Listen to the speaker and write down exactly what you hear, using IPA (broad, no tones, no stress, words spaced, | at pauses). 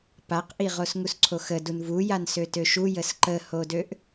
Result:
paqʔi ʁosŋusǀʰoxə dunvujan søtøʃu jəsǃəhodøʔ